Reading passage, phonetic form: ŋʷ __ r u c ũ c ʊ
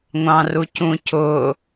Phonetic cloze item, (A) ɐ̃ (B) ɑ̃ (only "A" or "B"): B